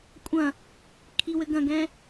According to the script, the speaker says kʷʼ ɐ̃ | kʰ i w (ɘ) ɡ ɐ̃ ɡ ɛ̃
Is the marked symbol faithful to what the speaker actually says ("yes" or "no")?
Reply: yes